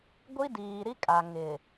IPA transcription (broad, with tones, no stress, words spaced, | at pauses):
ɡʷi˦diː˨ɾi˦kʼa˨ ŋɪ˨